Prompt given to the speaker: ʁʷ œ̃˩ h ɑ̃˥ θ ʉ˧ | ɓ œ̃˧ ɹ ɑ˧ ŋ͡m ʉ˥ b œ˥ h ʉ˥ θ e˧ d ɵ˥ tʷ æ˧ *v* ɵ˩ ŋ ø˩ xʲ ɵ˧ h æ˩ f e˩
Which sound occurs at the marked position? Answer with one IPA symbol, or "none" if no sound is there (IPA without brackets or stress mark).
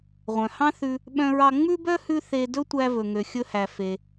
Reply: v